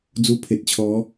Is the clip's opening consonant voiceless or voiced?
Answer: voiced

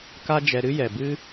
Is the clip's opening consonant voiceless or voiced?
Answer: voiceless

